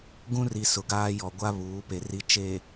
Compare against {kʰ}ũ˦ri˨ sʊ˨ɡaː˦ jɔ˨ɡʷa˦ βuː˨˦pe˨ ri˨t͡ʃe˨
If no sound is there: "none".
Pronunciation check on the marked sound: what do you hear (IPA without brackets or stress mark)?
ɡ